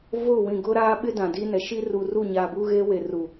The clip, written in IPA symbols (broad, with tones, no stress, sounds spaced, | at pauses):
v ʊ˦˨ w ĩ˨ ɡ ʊ˦ ɾ aː˦ ɓ ɪ˦ d ã˨ d iː˦ n ɛ˨ ʃ i˦ r u˨ r uː˦˨ ɲ aː˨ b uː˦ ɣ eː˦ w e˨ r u˨